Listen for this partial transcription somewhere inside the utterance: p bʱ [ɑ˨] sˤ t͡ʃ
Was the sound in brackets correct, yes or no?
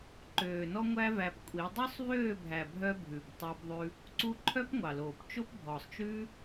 no